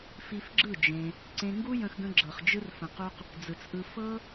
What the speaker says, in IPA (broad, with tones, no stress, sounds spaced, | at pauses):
f i˧ f ɡ͡ǁ ɯ˦˨ d͡ʒ ẽ˧ | ǀ ẽ˧ ŋ ɡ u˦ j ə̃˧ x ɡ ə̃˧ ɡ͡ǁ ɤ˨ χ d͡ʒ ɯ˧ r f ə̃˨ q u˧ q | d͡z ɯ˨ t͡s ʔ ɯ˧ f ɤ˦